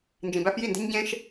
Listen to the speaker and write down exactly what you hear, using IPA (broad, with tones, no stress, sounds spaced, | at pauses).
n d͡ʒ ĩ˨ b æ˧ f j i˦˨ n d e̤˦ ɲ ɟ ẽ˦ ʃ